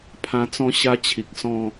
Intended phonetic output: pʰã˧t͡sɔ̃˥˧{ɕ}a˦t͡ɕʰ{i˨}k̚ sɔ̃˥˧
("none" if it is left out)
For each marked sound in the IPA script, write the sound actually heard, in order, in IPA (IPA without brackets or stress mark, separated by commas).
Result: ɕ, i˨